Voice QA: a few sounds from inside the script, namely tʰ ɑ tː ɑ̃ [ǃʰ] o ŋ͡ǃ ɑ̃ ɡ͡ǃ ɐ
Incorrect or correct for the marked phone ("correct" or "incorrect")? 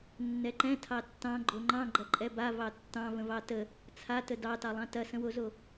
incorrect